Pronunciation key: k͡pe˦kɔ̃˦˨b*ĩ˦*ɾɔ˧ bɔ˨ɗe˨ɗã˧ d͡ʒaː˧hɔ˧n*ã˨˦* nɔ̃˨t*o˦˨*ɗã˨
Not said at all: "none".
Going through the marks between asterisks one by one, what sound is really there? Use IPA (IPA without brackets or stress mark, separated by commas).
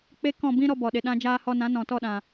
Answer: ĩ˦, ã˨˦, ɔ˦˨